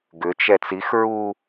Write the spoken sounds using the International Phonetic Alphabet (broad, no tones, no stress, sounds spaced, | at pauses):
ɡ ʏ t͡ʃ ɛ t͡s i x ɹ u